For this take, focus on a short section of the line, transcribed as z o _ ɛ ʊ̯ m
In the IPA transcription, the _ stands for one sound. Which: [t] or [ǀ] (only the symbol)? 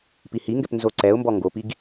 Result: ǀ